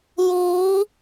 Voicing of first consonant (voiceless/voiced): voiced